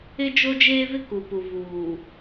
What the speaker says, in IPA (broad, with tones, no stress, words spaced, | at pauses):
ɪ˦d͡ʒo˦d͡ʒeː˦vɪ˦ ku˨pu˨ vuː˨